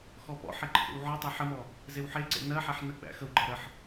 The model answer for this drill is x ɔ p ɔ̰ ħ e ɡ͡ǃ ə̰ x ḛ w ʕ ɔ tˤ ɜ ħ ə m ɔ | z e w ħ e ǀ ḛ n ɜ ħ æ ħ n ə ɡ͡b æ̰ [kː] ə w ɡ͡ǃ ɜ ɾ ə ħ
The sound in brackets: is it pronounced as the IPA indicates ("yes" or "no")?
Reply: no